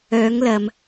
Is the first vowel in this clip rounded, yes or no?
yes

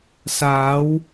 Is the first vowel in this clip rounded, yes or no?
no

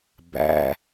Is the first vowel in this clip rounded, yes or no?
no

